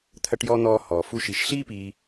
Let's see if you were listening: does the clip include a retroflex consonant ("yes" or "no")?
yes